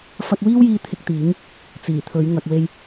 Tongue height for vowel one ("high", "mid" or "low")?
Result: low